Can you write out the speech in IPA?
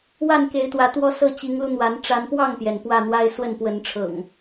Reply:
wa˥˨nke˨˦ɪ̯t̪wä˨˦ t̪wɔ˦sɤ˥˨ t͡ɕi˨˦ŋlu˧n̪wa˨˦n ʈ͡ʂa˨˦npwɑ˥˨ŋpjɛ˩n pwä˥˨n̪wa˦ɪ̯ swə˥˨npwə˨˦nʈ͡ʂʰɤ̰˨˩ŋ

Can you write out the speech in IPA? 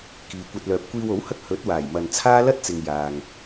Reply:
kiː˨kʷɐ˧t̚ lœː˨p̚kʷiː˧wo˨˥whɐ˥k̚ hɵ˨˥t̚ waː˨˩jmɐ˨nt͡sʰaː˥ lɐ˥t̚t͡sɪ˨ŋ jaː˨ŋ

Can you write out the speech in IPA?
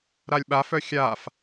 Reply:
ɾalʲɓa fœxʲaf

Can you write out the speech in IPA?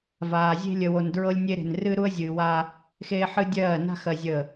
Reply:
vaː˨ zʲe̤˦lʲə˨wo˨n dɹɤ˦lʲnʲe˦ɾe̤˨n rɨ˦ɾu˦ə̯zʲɨː˨wa˦ | xeː˦ħɨ˦dʲɜː˦˨ na̤˦xɜ˨ zʲə˦˨

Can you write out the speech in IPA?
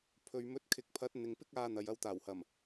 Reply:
pʰɵ˧ɥ mɵ˨˥t̚kʰɪ˨k̚pʰɐ˨˥t̚ n̪ɪ˨ŋpɪ˥k̚aː˧ n̪ɐ˨jɐ˧wt̪aː˨˩whɐ˨˩m

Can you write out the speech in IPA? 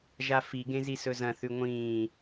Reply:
ʒafiɡẽ zisɵzɐ̃θʉ ŋʷĩː

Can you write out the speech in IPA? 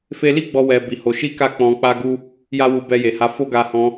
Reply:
fe˧li˦ ɡ͡bɔ˧wɛ˨ bi˨ho˨˦ ʃi˦ka˦˨ k͡pɔ̃˧k͡pa˦ɡu˦ | ja˦wu˧ bɛ˧je˨ha˧ fo˦ɡa˧hɔ̃˧

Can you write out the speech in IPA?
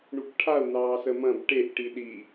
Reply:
ɳukʈʰau̯ nɑːsəmɐ̃b ʈeʔ ʈiɗi

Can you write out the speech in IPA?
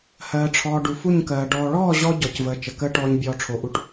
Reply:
hɜː˨ʈ͡ʂʰɔː˨ ɖu˨fu˦˨ɲkɜː˨ ɖɔː˨ɭɔː˦˨ ʑɔ˧ ɟɔ˨cvəː˨ t͡ʃə˨kəː˦ʈɔː˧ɲ bʲɔː˧ʈ͡ʂʰo˨ʔu˧ʈ

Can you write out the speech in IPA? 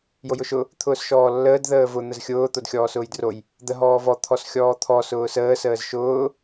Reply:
jojʊʃʊ | t̪ʰʊːsʃɔːlːəːd ðəːvʊ n̪əzxʲʊː t̪odxʲɔːsʊːjdroj | d̪ə ɦɔːvɔ t̪ʰɔsxʲɔːt̪ʰɔ sʊːsəː səːzʃʊː

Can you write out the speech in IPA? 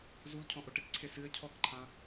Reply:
zulcʰɔ̃ ʔoʈɪkǀʰe sɨə̯ cʰɔkǃʰã

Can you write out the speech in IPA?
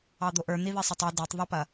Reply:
ɑd̪oʔə˞ n̪iðisˤɐtˤi də˞tˤ ðˤɪpɐ

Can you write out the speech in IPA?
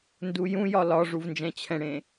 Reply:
ndujũjɒ lɒʐuv nd͡ʒɛ̃t͡ɕʰɛ̃ɽẽ

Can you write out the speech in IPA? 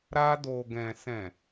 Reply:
ɾa˧do˨ɡɛ̃˨ sɛ̃˨

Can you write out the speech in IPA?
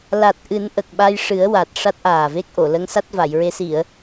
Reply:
la˨˩t̚ ʔɨ˨˩˦n ʔə˨˩k̚ɓa˧jʂɨ˨˩˦ə̯ wa˨˩t̚ ʂa˦˥t̚ʔaː˨˩ve˦˥k̚ʔo˨˩˨ lə˧˥ŋsa˦˥t̚va˨˩˨jɹe˧˥ si˨˩˨ə̯

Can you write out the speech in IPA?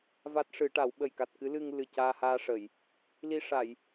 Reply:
va˦˥t̚ʂɨ˨˩˦ʈa˨˩˦w ɓə˨˩jka˨˩t̚ kɨ˧˥lɨ˧ŋ lɨ˨˩ caː˧haː˧ʂə˨˩˨j | li˧ʂa˨˩˨j

